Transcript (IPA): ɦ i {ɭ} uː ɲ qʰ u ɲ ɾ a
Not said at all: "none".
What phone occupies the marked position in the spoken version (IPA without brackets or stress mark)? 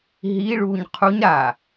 ɭ